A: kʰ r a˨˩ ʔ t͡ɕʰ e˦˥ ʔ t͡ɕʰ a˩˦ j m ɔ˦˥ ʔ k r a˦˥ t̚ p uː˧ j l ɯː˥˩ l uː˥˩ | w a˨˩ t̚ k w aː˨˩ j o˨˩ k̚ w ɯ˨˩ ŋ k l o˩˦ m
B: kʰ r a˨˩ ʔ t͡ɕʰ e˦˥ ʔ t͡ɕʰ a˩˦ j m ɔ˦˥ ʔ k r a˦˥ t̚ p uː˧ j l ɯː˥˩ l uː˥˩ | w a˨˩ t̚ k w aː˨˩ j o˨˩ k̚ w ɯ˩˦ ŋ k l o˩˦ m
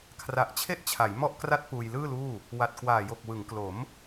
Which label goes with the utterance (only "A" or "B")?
B